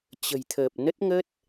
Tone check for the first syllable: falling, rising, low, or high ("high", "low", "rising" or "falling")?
low